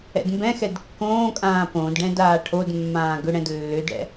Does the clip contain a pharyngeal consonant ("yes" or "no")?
no